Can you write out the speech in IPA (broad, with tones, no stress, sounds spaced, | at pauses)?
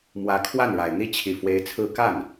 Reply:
m w ä˧˥ kʰ w a˥˩ n ɻ a˨˩ ɪ̯ n̪ i˥˩ t͡ɕʰ i˨˩ f w e˧˥ ɪ̯ t͡sʰ ɹ̩˥ k a˥˩ n